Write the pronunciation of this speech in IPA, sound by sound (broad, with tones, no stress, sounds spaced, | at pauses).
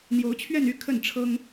n̪ j o˧˥ ʊ̯ t͡ɕʰ ɥ ɛ˥˧ n y˥˧ kʰ ə˥˩ n ʈ͡ʂʰ ɤ˥ ŋ